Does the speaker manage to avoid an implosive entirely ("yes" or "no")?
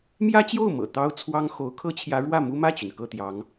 yes